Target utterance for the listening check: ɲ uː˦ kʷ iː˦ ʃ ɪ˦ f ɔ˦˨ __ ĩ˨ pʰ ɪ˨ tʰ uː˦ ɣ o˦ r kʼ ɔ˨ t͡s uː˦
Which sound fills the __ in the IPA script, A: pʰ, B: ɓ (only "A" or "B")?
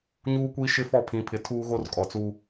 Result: A